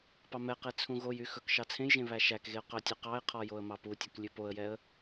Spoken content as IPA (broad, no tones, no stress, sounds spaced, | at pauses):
p ɑ m ɛ q e t͡sʰ ũ ɣ o j y x ɵ k ʃ ɑ t͡sʰ ẽ j ʒ ẽ β æ ʃ æ k ɣ e ʊ̯ q œ tʲ ʉ q ɑ ɪ̯ qʰ ɔ j o ə̯ m ɑ p u tʲ ɵ k lʲ ʉ p o ə̯ j ɛ ə̯